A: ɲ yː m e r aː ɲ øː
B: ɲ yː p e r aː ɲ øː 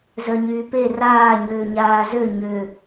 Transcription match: B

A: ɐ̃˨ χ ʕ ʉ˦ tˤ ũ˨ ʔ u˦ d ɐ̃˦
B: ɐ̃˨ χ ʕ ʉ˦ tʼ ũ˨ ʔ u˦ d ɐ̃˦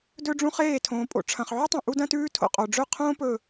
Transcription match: A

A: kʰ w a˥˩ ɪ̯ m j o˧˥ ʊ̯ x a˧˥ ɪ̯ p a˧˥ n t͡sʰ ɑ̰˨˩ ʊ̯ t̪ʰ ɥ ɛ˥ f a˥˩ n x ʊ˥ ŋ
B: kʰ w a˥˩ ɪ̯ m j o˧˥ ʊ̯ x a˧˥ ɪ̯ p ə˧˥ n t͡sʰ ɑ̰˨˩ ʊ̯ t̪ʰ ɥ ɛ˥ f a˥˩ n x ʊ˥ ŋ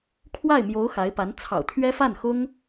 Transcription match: A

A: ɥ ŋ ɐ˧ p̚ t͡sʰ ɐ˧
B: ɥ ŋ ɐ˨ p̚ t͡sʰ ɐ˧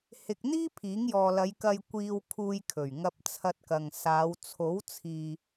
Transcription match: A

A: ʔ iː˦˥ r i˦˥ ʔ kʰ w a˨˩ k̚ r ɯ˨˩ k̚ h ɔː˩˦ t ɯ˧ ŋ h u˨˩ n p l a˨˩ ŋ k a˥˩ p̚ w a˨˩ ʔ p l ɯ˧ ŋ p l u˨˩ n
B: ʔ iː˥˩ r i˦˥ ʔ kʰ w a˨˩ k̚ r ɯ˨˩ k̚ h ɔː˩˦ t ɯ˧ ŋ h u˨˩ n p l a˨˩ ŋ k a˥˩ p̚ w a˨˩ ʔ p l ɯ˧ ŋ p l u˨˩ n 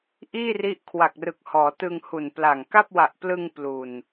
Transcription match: B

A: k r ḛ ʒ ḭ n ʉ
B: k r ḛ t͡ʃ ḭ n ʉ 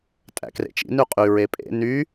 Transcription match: B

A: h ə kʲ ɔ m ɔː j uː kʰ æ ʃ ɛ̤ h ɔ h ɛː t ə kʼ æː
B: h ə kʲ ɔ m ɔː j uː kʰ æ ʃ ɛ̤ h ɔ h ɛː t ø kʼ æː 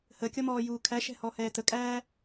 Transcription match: A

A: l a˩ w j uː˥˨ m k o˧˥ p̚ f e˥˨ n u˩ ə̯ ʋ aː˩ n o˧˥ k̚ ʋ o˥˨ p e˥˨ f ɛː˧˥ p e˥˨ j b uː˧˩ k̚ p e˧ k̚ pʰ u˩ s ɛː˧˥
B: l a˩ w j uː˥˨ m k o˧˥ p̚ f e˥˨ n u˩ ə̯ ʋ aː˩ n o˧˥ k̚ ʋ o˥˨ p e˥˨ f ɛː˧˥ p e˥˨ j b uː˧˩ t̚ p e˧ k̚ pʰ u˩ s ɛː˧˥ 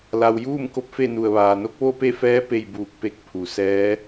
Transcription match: A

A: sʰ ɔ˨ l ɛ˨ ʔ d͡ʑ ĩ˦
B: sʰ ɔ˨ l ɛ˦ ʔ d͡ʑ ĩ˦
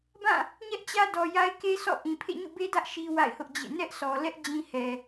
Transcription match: B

